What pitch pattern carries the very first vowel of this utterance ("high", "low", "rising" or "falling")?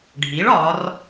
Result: rising